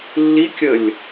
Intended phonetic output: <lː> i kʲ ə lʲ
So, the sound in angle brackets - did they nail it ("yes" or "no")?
yes